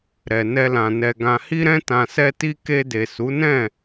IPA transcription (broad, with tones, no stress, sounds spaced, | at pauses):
ɾ ɛ˨ n ɛ˧ l ã˨ n ɛ˨ ɡ ã˨ h i˧ ɾ ɛ̃˧ t ã˨ s ɛ˧ t i˧ k e˧ d e˨ s u˨˦ n ɛ̃˦˨